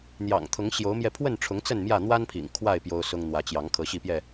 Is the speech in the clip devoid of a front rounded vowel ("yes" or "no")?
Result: yes